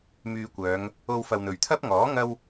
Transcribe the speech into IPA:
myː˧kʷœː˨˧ŋ | o˧wfɐ˨wn̪ɵ˨˩ɥ t̪ʰɐ˥p̚ŋɔː˨˥ ŋɐ˥w

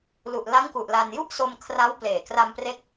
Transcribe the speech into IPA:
lu˨˩ʔla˦˥ŋku˨˩ʔ la˧n ju˥˩ʔso˧m kʰra˦˥wpleː˨˩kra˧mpre˦˥k̚

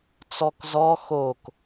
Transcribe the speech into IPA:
t͡sɔkzɔ xok

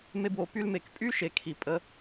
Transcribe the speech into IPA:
me˦bwo˧ py˧lme˨k pʼy˦ʃe˨ kʰi˨pʼə˧

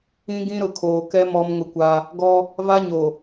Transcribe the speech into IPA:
ĩ˦ɡĩ˦ ɾʊ˨kʰoː˨kɛ˦ mɔ˦mŋʊ˦kʷa˦ | ɡɔ˦ | va˦ɲo˨

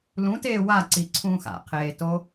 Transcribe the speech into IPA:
lũteː waǀiǀʰũːx a̰qʰeːto

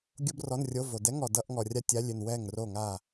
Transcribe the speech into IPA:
ɡʲo˥brɔ˧˥˧nrʲo˧˥˧vo˨ dɛ˧˥˧ŋɔ˨ dʌ˧˥˧ʔŋɔ˨ rʲa˥tʲa˧˥˧lʲʏ˥˨n wɛ˥˨ŋro˥˨ŋa˥˨

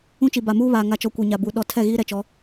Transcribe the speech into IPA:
ũ˦t͡ʃi˨ ba˨muː˦βaː˨ ŋa˨t͡ʃɔ˨ kʷi˨ɲa˨bu˨ ɗɔ˨ tʰɛ˦˨ɣiː˦ɾɛ˨t͡ʃɔ˨˦

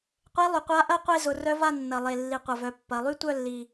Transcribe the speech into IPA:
qʷe˧˥lˠʏ˨˩qʷa˧˥ ʔɐ˥˧ qʷe˥˧zʊ˩˧rœ˧˥va˥˧ nːɐ˨˩lˠe˨˩lːi˨˩ qʷɐ˨˩vœ˩˧ pːɐ˩˧lˠy˥ tʷœ˥˧lːi˨˩

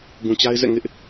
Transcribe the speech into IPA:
ɡũ˨t͡ɕa˦ɪ̯zɛ̰˦˨ ŋɪ˦ʔ

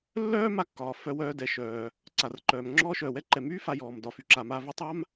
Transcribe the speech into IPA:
lːœː˥ma˧kːɒː˩ fœ˧wœː˧dɛ˩ʃœː˩ | ǀa˩rǃœː˩m ŋ͡ǁɔː˧ʃœː˩wɛ˧ǃɛ˩ myː˥ fa˧jɔː˩m dɒ˩fy˩ǁa˩ ma˧vy˧tˤa˥m

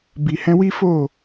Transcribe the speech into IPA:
bi˨hɛ̃˧wi˦fo˦˨

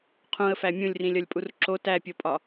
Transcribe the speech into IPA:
qʰũə̯fæ mʲũlʲrĩlʲɒlʲpʼur ǁo tæpʲopʼɒ

